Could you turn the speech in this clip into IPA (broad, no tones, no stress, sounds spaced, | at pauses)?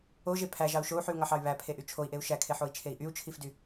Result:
o ʒ e pʰ æ ʒ ɑ u̯ ʃ o u̯ ħ y u̯ ŋ ɑ ħ ɑ y̯ β æ pʰ e ʔ y t͡ʃʰ o i̯ ʔ e u̯ ʃ æ kʰ e ħ o i̯ t͡ʃʰ e i̯ ʔ y u̯ t͡ʃʰ i f d y